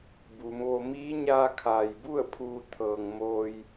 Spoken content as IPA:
b uː˩˧ m ʋ o˧ m iː˧˥ ɲ aː˧ kʰ aː˩ j b u˥˨ ə̯ pʰ uː˧ t̪ʰ ɤː˩ ŋ m oː˧ j

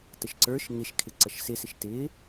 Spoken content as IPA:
t ə ʃ ǀ ə˞ ʃ ŋ ɪ ʃ kʰ ɪ ǀ ʌ ʃ s ɪ s ɪ ʃ t ɪ

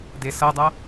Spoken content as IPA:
d e s ʌ dˤ a

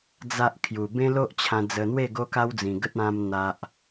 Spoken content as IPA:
d͡z a˦ ʔ kʰ j u˨˩ b ẽ˦ l o˦ ʔ t͡ɕʰ ã˧ d͡z ə˧ n̪ w e˥˧ ɡ o˦ k a˦ w d͡z ĩ˨˩ ɡ ə˦ t̚ ã˧ m n̪ a˨ ʔ

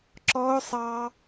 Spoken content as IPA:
ǁ ɔ˦ ʊ̯ sˤ ɑ˦

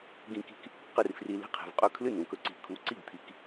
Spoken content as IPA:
ɡ ĩ˧ k i̤˧ k | q ɨ˥˩ r f r i˧ l i̤˥ qʰ i̤˨˩ v qʼ ɵ˥ kʰ l ɨ˥˩ n ũ˨˩ k ɵ˧ ǀ i̤˨˩ kʰ u˨˩˦ ǀ i˥˩ ɡ t̪ʰ i˨˩ k

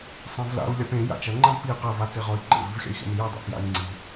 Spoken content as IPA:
sˤ ẽ v l a̰ u̯ lʲ a p ẽ j a̰ t͡ʃ ɐ ŋ͡ǃ ã v p i q ɐ v a t͡s e ʁ ɔ i̯ ǃ ḛ v i v xʲ a̰ i̯ x ḛ n i j ɐ dˤ ḛ p j a̰ i̯ ŋ͡ǀ i

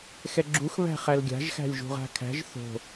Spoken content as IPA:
x ɛ ɡ͡ǁ u x β æ̤ χ æ l ɡʲ a̤ ʒ x æ̤ lʲ ʒ ṳ ʁ a̤ kʰ æ̤ ʒ θ o̤

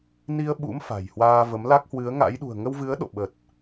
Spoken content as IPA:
n i˧ ə̯ ɓ ṵ˧˥ m f a̤˨˩ j h w aː˧ v ə˨˦ m l aː˦˥ k̚ h w ɨ˨˦ ə̯ ŋ a̰˧˥ j ɗ ṳ˨˩ ə̯ ŋ ə˧ w v ɨ˨˦ ə̯ ɗ o̰˧˨ ɓ ə˨˩ t̚

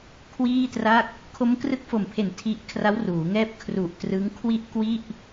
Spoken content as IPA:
kʰ w iː˥˩ t r a˥˩ k̚ | kʰ o˦˥ m k r ɯ˦˥ k̚ f o˨˩ m pʰ e˨˩ n tʰ i˦˥ ʔ kʰ r a˦˥ w r uː˩˦ ŋ ɛː˦˥ p̚ kʰ r u˨˩ ʔ t r ɯ˦˥ ŋ kʰ w i˥˩ ʔ k w i˥˩ ʔ

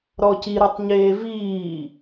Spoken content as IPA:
ɾ ɔ c i ɾ u tˤ ɲ eː v iː

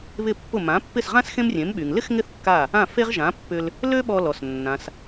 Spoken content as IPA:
β ɪ˥˩ pː ʊ˥˩ m ã˩˥ pː ɪ˥˩ s ʁ ã˥ s x ẽ˥ m rʲ ẽ˩˥ m ɓ y˩ ŋ l ɪ˥ x ŋ ɪ˥˩ θ kː a˥˩ | ã˥˩ f e˥ ʁ ʒ ã˩˥ pː ʏ˧ l | l ø˥ ɓ ɔ˧ l ɔ˩ s nː ã˩ s

